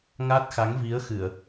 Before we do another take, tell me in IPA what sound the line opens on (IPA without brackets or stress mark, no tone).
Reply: ŋ